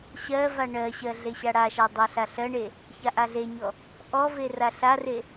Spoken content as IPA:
ɕ ɜ v a ɳ ɜ ɕ ɜ ɮ e ɕ a ɽ a ʃ a dˤ ɜ ɬ a ɬ ɜ ɳ e | ç a ʔ a ɮ e ɲ ɔ | ʔ ɔ v e r a ɬ a r e

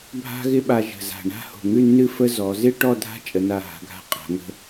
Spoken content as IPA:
bʱ a̤˥ ɣ ɪ˥ ɓ a˧ ʒ ə̤˧˩ z a̤˧˩ ɳ a̤˥˧ h o̤˧˩ ŋ ʉ˥˧ nː ɨ˥˧ f ə˥ z ɔ˩˧ z ɪ˥ ʈ ɔ˥˧ dʱ a̤˥ t͡ʃʼ ə˩˧ n a˧˩ ɦ a̤˩˧ ɡʱ a̤˧ qʼ a̤˩˧ ŋ ə̤˧

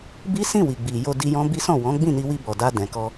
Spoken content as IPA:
b i˦ s ĩ˦˨ w i˨ ɡ͡b i˨ j o˧ d i˧ j ɔ̃˦ b i˦ s ɔ̃˦˨ w ɔ̃˨˦ ɡ͡b ĩ˦˨ n i˧ w i˧ b ɔ˨ d a˧ d ɛ̃˨ k ɔ˧

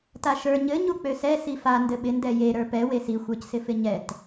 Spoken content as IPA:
t a ʃ ə˞ ɲ ɘ ɲ u k͡p ø s ɛ s i f a n d ɘ ɓ ɪ n d ɛ j e ɾ ə˞ p ɛ w e s i xʷ ə˞ c s ɪ f ɪ ɲ ɛ t

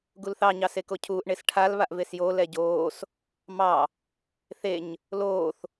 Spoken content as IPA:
ɡ u l θ ɑ ɲ ɑ s e k o cʰ uː ʔ ɳ e s ʈʰ a l β a ʔ v e s j o l ɛ ɟ oː s | m ɑ | θ e ɲ | l oː θ

